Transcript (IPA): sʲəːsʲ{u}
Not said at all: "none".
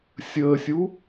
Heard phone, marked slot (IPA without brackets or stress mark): u